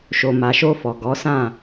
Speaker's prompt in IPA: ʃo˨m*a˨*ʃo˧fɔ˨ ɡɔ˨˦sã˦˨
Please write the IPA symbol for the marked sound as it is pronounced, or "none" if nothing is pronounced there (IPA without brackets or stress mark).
a˨